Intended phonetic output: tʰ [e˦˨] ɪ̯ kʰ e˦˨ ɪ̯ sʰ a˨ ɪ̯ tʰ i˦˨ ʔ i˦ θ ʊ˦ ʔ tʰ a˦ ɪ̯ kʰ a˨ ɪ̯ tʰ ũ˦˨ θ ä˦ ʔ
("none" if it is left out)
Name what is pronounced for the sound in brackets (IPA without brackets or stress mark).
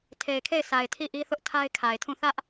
e˨